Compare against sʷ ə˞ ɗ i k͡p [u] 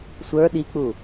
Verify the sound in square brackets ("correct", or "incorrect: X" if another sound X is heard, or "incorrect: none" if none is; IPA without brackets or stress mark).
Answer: correct